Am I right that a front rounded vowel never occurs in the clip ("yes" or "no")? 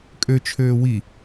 no